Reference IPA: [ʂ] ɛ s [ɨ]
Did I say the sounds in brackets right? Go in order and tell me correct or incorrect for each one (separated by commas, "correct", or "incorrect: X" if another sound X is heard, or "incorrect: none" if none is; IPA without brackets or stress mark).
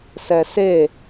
incorrect: s, incorrect: e